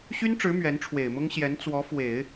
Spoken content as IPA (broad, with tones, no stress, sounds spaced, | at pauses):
ɕ y˥ n ʈ͡ʂ ɻ̩˧˥ m ɥ ɛ˧˥ n ʈ͡ʂʰ w e˨˩ ɪ̯ m ʊ˥ ŋ ɕ j ɛ˧˥ n t͡s w ɔ˧˥ f w e˨˩˦ ɪ̯